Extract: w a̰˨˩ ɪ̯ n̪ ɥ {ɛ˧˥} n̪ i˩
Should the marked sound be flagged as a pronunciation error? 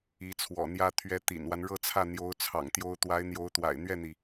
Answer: yes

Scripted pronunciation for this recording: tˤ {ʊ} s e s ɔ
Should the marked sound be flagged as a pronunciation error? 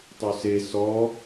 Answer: yes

